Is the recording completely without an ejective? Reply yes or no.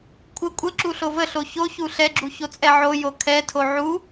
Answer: no